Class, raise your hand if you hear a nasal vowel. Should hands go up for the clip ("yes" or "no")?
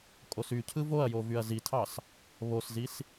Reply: no